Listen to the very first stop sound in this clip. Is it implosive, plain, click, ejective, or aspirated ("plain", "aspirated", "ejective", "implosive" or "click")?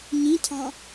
aspirated